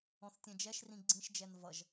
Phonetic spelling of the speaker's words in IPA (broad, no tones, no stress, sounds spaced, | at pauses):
ɔ̃ θ tʲ ɛ̃ d͡ʒ ɛ ʃ r ĩ ɡ͡ǀ ĩ ʃ d͡ʒ ɛ n v ʌ ʒ